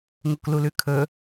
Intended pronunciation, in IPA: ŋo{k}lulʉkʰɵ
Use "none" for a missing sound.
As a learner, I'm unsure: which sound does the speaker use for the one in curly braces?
k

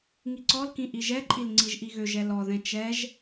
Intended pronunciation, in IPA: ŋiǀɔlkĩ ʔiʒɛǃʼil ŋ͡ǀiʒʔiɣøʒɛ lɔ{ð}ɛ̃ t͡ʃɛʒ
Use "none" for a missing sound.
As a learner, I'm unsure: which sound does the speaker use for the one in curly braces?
ð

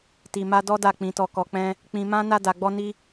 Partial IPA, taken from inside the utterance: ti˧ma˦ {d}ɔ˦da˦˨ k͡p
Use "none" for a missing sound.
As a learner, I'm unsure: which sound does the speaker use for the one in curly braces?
d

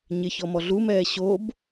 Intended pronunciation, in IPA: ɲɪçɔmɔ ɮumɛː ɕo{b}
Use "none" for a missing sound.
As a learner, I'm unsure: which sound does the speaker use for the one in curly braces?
b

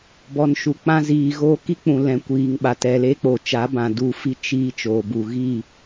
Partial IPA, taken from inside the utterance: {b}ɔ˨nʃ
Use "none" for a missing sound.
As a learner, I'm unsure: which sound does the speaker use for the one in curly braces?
b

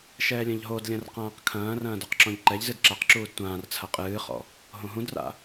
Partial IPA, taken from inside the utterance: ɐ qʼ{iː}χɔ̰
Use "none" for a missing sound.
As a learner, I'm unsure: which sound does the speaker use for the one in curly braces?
ɨː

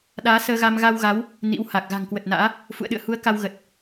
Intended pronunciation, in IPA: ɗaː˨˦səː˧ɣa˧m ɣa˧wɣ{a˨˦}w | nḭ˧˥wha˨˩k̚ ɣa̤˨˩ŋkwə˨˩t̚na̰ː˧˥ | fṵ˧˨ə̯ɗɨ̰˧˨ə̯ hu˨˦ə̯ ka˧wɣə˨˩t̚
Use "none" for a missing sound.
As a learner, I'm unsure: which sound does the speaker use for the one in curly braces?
a˨˦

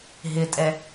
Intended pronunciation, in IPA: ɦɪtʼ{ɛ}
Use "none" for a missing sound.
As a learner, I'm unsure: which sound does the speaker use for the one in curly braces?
ɛ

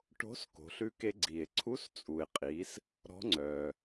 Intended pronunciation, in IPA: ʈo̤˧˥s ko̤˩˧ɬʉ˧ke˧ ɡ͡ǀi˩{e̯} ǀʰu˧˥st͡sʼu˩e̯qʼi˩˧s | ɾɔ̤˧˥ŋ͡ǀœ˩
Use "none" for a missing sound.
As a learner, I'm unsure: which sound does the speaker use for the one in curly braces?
e̯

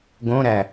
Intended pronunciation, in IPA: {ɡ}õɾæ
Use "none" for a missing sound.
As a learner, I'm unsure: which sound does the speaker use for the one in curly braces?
ɡ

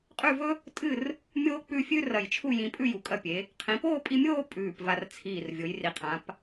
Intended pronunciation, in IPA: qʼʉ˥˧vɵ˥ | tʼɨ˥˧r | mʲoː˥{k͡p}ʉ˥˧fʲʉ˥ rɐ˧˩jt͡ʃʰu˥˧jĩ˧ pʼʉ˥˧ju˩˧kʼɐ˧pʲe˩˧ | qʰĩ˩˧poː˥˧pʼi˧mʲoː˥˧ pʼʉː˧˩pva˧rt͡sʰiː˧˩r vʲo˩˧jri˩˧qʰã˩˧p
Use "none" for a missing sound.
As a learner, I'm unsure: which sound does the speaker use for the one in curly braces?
k͡p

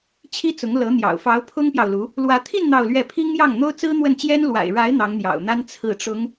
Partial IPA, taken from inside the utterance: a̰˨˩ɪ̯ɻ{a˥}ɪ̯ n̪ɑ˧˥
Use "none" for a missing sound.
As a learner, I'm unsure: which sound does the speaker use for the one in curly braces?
a˧˥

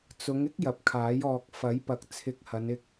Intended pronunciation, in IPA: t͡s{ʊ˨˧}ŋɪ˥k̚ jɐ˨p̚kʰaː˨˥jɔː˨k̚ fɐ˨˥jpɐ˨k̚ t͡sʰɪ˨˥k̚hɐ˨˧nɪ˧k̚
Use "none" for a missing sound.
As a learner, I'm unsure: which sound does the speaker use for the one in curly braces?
ʊ˨˧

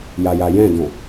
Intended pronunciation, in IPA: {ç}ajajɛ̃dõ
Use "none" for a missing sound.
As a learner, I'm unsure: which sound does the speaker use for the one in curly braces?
j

